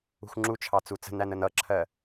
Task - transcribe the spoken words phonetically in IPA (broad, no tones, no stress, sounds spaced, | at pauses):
ṳ x ŋ͡ǁ u t͡ʃʰ ɑ t͡s u t͡s ə̤ n æ n ə n ʌ ǁʰ ɜ